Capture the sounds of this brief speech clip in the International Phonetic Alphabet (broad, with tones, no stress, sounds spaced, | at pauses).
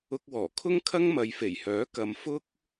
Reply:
ʊ˧ k̚ w ɔː˨˩ kʰ ʊ˥ ŋ kʰ ɐ˥ ŋ m ɐ˨˧ j f e˨˩ j h œː˨˥ k ɐ˧ m f ʊ˥ k̚